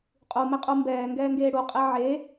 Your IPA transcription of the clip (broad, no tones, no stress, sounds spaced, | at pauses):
qʼ u m e qʼ u m b ɛː ŋ ɡ ɛː ŋ ɡ eː ɽ u qʼ e ʕ e